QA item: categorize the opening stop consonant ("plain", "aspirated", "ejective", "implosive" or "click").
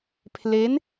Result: aspirated